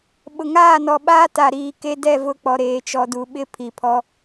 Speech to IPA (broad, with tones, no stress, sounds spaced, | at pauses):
ɓ ʊ˨ ŋ aː˦˨ n ɔ˨ ɓ aː˦ t a˨ ɾ iː˨ k e˦ d ɛ˦˨ v ʊ˦˨ k͡p ɔ˨ ɾ eː˨ t͡ʃ ɔ˨ d u˨ ɓ ɪ˦ pʰ i˨ pʰ ɔ˦